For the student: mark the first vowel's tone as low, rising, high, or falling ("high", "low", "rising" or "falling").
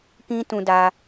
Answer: high